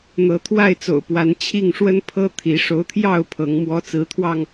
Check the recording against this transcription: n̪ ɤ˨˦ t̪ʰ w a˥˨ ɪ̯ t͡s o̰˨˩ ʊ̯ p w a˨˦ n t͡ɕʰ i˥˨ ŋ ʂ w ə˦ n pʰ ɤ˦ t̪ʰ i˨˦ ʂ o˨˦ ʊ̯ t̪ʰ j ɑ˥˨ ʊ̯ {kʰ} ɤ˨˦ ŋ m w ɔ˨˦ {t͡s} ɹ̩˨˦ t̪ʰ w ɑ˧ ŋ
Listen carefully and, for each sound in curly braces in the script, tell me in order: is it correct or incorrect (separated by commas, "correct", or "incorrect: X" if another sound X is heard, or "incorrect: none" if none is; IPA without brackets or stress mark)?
incorrect: pʰ, correct